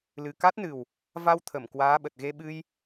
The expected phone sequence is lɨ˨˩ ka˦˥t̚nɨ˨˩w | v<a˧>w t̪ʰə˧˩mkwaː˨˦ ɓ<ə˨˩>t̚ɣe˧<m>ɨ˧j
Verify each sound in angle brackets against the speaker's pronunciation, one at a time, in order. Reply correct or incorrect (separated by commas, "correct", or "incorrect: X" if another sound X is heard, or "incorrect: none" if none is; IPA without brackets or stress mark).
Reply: correct, correct, incorrect: ɓ